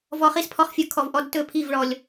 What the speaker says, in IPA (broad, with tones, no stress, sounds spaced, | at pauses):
v ɔ˧ χ i˦ s pʰ ɔ˧ χ fʲ ə˞˧ kʰ ɔ˨ v ʔ ɔ˧ d t ɵ˦˨ pʰ i˦˨ v ɭ ɔ˨ lʲ